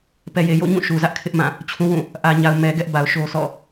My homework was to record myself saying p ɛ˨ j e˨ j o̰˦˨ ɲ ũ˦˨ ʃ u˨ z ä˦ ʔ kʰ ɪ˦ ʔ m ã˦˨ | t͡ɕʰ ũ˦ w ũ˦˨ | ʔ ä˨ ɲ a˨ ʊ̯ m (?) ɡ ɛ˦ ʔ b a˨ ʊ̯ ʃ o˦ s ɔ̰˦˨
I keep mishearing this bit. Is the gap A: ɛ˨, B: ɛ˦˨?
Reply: A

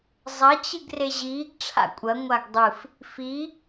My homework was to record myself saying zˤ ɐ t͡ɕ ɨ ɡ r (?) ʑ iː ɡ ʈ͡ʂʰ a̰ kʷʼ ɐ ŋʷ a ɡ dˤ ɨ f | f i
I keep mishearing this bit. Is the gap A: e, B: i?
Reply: A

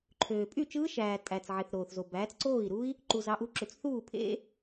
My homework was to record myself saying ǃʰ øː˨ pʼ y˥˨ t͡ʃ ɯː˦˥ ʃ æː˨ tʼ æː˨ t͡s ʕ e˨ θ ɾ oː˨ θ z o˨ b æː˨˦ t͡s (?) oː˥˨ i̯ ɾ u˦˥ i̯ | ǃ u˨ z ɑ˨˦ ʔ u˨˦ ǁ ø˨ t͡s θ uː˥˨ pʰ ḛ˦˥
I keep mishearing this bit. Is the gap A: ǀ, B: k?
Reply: A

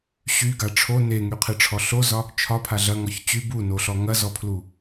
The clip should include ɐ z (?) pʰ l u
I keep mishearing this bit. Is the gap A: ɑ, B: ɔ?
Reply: B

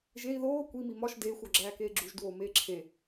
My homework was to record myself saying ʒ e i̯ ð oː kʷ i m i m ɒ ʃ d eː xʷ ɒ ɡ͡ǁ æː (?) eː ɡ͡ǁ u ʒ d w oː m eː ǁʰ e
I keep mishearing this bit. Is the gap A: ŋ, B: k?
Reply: B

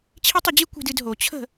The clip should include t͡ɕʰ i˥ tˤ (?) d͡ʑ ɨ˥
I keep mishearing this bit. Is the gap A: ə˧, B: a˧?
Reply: A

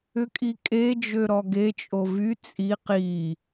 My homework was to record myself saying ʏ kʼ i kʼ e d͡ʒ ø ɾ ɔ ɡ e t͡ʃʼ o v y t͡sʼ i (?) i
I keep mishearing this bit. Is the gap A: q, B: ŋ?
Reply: A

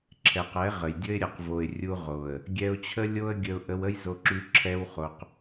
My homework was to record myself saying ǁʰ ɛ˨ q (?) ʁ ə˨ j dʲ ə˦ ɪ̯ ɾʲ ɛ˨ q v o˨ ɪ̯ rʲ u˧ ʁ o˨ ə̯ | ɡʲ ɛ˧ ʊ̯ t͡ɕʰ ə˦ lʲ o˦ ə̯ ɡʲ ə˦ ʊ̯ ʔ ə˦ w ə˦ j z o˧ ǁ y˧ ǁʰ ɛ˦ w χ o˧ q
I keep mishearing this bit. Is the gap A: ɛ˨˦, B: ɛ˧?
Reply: A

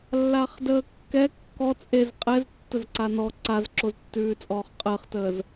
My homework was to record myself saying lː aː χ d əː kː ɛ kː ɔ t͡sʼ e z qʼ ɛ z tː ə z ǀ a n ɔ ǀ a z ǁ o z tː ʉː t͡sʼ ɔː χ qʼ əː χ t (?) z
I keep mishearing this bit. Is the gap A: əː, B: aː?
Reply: A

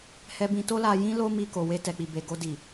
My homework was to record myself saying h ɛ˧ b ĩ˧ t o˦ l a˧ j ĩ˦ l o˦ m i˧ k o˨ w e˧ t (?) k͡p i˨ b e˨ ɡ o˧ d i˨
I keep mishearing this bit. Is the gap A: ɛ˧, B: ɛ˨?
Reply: B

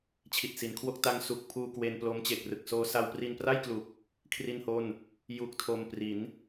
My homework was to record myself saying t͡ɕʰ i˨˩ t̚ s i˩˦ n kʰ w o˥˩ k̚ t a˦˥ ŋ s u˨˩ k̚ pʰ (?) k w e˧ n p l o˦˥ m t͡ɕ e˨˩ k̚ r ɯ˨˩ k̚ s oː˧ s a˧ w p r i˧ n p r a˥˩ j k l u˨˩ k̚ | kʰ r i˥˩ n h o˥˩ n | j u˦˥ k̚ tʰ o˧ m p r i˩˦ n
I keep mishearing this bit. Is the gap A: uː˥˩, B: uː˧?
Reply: B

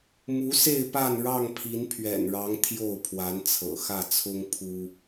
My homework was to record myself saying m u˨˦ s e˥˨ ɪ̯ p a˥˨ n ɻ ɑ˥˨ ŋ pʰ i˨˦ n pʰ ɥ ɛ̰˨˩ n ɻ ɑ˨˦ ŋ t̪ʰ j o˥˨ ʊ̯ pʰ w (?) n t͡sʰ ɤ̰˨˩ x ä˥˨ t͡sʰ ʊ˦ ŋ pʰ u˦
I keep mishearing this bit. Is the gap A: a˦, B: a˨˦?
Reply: B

